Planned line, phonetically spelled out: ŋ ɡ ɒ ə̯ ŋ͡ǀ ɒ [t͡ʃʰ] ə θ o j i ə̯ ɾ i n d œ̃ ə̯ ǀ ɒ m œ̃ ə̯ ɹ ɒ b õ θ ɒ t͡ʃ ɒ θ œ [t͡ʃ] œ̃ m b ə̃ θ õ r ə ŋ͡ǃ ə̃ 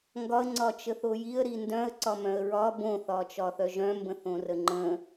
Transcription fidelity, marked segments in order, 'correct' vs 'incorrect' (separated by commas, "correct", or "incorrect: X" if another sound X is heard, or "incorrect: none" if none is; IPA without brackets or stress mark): incorrect: t͡ʃ, incorrect: ʒ